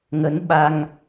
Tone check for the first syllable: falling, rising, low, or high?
rising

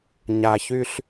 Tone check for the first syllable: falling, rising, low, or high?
low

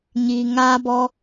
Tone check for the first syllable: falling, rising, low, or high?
low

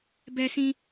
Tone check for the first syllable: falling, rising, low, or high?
high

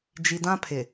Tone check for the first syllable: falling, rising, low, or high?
low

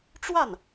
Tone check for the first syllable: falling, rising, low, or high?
falling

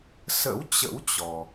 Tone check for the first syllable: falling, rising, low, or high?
rising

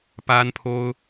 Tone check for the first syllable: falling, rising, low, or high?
high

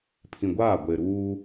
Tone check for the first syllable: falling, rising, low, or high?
low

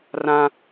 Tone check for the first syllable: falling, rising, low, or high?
high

